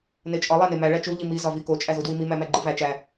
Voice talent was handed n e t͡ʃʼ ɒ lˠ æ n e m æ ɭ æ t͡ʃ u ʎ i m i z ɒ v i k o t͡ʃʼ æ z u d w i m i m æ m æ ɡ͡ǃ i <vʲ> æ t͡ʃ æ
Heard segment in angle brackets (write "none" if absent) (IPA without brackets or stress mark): v